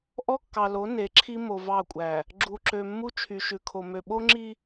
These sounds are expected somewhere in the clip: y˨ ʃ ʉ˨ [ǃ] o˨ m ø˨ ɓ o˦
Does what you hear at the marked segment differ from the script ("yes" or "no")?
yes